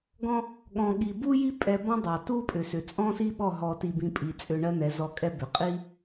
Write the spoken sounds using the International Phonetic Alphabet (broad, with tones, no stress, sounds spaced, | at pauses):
ɡ ɔ̃˦ | ɠ ɔ̃˧ ɠ i˧ b u˦ j i˦ pʼ ɛ˧ b ɔ̃˦ dˤ ɑ˨ t u˦ pʼ ʏ˨ s ʏ˨ t͡sʼ ɔ̃˦ s i˦ ɓ ɔ˦˨ ɦ ɔ˧ t i˧ b ĩ˧ pʼ i˨ t͡sʼ ʏ˧ ɳ ɜ˦ n̪ ɛ˨˦ z ɔ˧ kʼ ɛ˦ b ʏ˨ qʼ i˦